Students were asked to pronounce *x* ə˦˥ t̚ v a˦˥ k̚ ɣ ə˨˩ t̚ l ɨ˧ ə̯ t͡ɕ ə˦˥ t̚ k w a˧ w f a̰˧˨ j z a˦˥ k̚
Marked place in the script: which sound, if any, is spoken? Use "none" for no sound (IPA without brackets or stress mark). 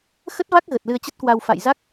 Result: x